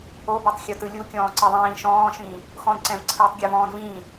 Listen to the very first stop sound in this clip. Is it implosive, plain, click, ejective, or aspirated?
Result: plain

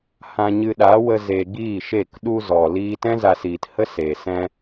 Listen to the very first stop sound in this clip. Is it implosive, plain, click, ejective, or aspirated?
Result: implosive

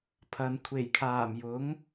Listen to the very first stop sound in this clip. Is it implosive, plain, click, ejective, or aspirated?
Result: aspirated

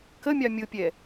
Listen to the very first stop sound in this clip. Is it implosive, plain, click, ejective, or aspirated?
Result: plain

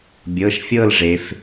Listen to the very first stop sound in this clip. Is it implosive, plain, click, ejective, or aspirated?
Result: plain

